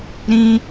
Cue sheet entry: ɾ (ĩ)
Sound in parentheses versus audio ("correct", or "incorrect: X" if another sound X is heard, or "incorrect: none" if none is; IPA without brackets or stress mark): correct